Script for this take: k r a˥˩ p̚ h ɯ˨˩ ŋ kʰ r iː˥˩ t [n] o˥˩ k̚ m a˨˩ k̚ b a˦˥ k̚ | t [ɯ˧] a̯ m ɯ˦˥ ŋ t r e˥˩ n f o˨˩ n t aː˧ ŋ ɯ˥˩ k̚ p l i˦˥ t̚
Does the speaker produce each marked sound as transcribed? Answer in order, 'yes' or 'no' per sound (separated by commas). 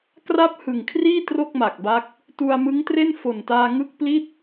no, no